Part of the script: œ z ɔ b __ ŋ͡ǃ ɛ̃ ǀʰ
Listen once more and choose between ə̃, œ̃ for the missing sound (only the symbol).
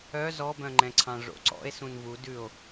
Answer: œ̃